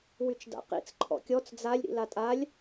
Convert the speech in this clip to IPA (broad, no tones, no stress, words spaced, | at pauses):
wyt͡ʃda̰qḭt͡s ǃʰɔ̰kʲɔt͡s d͡zalʲ ɾḭlatʼalʲ